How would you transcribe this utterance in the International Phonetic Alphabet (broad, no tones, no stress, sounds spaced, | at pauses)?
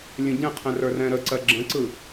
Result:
lʲ ə̃ ɟ ɛ̃ qʰ ɛ̃ r ə˞ r ɛ̃ ɾ ə ǀ ɜ ɡ͡ǁ ə̃ ǀ ɯ